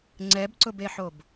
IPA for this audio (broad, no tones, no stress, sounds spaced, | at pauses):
ŋ͡ǀ ɛ b ǀ ʊ b e ħ o b